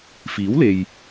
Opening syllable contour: rising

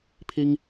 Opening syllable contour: high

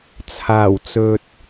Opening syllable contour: low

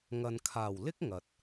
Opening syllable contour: low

